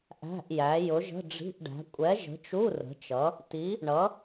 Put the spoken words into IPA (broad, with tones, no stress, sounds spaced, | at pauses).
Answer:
ʔ æ̤˧˥˧ ʔ j æ˨˥ j ʊ˨˥ ʒ ə̤˧˥˧ ɖ͡ʐ i̤˧˥˧ ʔ ɖ æ̤˨˥ kʷʼ ɛ˨˥ ʒ ə̤˨˥ t͡ʃ u˧˥˧ r ə̤˨˥ t͡ʃ ʌ˨˥ | t i˨˥ | ɳ ʌ˨˥